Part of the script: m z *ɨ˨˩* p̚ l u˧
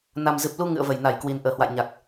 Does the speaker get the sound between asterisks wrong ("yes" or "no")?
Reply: no